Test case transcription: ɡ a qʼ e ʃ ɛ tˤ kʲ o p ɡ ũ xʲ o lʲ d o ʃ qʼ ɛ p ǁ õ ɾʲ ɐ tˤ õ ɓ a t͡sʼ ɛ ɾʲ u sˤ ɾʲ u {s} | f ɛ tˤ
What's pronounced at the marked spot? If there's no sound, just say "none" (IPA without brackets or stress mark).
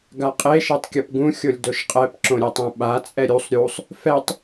sˤ